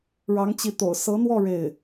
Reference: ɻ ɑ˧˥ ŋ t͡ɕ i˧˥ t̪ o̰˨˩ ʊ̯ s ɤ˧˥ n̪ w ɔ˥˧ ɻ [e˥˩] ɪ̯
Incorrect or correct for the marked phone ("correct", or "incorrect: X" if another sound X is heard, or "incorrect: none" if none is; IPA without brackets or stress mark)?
correct